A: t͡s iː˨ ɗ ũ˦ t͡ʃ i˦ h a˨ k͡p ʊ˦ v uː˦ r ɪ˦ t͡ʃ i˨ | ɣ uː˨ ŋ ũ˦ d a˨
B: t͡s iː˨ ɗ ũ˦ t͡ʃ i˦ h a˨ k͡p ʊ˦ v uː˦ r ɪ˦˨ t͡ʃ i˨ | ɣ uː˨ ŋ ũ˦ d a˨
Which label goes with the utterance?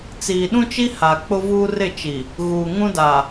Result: B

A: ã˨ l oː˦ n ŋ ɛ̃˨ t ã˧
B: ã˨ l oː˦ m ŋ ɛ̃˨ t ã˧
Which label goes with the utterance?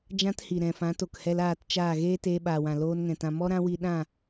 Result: A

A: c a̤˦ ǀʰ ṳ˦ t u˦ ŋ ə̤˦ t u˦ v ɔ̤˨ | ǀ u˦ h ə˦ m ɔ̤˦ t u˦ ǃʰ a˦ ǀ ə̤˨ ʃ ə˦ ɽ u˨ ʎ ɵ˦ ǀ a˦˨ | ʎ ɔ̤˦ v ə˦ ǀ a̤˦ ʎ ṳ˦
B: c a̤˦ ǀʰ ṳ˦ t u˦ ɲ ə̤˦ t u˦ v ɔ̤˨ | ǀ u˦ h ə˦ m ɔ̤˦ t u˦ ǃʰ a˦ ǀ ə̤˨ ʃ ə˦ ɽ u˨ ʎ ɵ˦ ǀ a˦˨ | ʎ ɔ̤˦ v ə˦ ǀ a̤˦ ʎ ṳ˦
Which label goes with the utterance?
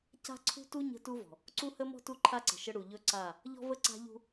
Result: B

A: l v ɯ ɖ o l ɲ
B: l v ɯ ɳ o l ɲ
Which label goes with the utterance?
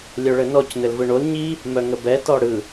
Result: B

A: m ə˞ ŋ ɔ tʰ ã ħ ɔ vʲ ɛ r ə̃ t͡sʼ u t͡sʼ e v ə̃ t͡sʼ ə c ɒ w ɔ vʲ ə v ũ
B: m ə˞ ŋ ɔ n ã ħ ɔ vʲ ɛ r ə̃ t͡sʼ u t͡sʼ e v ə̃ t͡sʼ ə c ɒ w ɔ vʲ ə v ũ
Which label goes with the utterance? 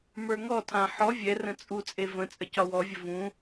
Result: A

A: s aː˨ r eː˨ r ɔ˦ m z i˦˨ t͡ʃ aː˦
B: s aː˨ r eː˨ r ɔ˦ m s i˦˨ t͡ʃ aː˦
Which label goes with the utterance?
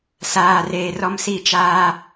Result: B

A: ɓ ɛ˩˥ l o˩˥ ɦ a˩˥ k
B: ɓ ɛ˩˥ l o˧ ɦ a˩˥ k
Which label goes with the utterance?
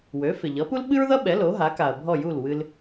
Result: A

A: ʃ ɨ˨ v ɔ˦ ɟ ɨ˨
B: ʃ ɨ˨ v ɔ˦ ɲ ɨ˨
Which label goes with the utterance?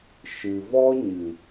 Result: B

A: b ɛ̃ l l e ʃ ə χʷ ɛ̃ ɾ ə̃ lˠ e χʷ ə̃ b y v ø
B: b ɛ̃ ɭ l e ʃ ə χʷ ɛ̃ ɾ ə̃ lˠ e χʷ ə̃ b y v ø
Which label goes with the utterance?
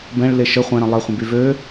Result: B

